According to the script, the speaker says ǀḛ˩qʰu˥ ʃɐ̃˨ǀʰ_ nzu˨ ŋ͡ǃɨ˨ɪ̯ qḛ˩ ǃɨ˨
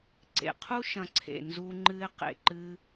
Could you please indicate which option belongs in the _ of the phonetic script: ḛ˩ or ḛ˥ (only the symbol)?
ḛ˩